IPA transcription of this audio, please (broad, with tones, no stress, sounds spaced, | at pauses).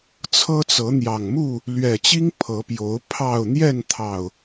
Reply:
t͡sʰ ɤ˦ t͡s ɤ˨˦ n̪ j ɑ˨˩ ŋ m u˥˨ | l ɥ ɛ˨˩ t͡ɕ i˦ ŋ pʰ ɤ˨˦ p j o˨˦ ʊ̯ pʰ ɑ˥˨ ʊ̯ n̪ j ɛ˥˨ n t̪ʰ ɑ˨˩ ʊ̯